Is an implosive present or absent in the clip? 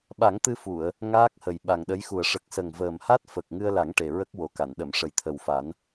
present